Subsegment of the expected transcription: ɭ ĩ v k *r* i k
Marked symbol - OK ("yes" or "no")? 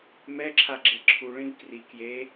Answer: yes